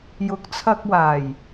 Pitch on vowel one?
rising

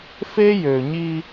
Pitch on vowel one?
high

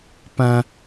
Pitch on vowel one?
high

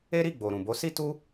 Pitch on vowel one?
high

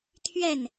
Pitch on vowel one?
falling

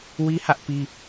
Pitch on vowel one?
high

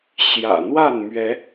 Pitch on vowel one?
low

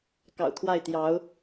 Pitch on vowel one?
low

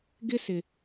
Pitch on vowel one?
high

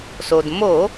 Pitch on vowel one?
low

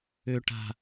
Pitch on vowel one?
low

